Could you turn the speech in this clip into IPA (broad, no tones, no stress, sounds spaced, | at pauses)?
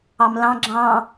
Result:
ɑ m l ɑ̃ ɡ͡ǁ ɑ̃